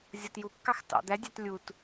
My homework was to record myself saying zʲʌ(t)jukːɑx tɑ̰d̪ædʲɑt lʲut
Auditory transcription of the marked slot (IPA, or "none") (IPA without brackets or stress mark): t